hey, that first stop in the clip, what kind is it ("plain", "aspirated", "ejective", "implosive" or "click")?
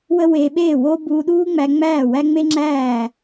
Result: implosive